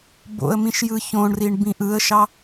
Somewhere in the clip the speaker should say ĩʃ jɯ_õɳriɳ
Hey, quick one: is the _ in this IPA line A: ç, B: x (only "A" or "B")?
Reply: A